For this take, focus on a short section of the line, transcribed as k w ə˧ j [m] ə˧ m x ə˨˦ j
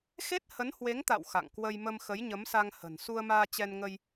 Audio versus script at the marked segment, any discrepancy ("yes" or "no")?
no